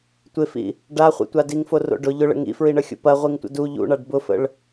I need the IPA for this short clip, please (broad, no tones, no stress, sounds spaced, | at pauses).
tʷ ɪ f ḭ | ɖ a χʷ ḭ tʷ a d i ŋ f o r o̰ ɖ ʊ ʎ ʊ ɭ ə̰ ŋ ḭ f ɹ i ɳ ə xʲ o̰ p ɐ ʁʷ i ŋ tʷ ə̰ d u ʎ ṵ ɳ a ɖ b ʊ f ə̰ ɭ